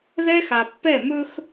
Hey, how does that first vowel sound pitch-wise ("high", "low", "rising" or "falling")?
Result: high